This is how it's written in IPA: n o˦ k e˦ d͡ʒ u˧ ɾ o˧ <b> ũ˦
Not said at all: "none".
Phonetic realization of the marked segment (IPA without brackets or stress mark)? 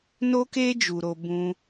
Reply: b